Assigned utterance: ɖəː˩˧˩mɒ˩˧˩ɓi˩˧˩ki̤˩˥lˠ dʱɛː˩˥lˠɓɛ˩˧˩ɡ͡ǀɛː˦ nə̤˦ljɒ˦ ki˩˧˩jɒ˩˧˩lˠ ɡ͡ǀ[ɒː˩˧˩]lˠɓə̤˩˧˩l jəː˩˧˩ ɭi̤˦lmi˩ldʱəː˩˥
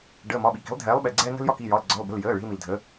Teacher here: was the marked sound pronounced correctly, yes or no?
no